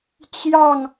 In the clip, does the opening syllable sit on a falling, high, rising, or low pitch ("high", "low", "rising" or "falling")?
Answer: falling